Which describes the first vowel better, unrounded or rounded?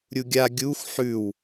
rounded